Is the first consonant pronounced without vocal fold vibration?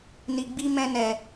no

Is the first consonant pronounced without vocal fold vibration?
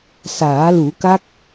yes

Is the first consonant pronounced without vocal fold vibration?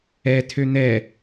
yes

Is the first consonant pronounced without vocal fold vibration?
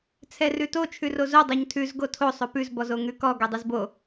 yes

